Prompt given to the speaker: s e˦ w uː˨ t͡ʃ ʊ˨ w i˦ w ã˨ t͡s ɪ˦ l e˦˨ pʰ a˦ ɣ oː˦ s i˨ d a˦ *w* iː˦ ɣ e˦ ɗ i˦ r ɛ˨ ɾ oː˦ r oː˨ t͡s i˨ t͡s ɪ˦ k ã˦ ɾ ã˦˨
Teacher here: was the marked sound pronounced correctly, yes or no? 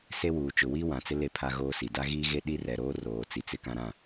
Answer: no